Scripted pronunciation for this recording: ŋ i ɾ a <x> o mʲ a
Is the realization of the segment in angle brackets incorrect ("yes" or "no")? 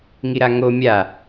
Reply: yes